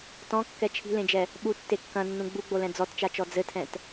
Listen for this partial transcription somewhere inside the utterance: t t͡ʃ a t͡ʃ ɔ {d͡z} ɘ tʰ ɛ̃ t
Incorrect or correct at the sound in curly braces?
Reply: correct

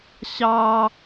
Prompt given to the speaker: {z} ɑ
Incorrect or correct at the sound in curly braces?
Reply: incorrect: ɕ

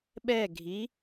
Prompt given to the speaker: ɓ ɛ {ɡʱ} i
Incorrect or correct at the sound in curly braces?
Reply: correct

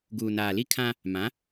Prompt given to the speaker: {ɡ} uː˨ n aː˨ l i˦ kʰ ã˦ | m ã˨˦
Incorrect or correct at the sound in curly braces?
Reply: correct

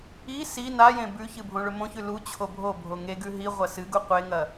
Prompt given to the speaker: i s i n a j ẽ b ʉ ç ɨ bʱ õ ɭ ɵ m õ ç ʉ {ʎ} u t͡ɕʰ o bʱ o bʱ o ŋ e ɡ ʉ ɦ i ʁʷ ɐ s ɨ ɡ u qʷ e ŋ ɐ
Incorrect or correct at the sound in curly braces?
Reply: incorrect: l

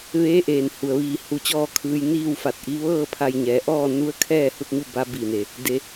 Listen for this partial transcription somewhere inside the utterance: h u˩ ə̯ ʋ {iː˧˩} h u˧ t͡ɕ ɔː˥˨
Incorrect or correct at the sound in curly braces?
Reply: correct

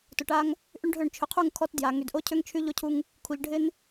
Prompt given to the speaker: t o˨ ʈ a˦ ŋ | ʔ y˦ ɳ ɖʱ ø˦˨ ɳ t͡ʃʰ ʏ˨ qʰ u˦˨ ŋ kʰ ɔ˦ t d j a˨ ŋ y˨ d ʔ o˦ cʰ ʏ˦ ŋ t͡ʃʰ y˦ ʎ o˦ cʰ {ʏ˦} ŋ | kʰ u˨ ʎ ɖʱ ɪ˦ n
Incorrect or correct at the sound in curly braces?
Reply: incorrect: u˦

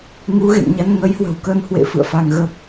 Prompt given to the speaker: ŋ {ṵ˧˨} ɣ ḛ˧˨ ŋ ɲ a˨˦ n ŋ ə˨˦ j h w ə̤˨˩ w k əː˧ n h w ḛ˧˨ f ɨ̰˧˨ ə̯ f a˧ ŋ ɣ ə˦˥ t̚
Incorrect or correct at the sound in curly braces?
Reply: incorrect: u˨˦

